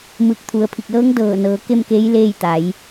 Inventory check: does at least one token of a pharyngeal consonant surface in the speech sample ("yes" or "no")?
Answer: no